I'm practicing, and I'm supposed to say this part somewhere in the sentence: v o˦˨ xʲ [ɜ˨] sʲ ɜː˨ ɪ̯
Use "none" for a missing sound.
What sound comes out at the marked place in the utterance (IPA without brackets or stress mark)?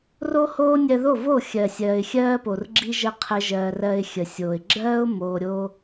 ɜ˨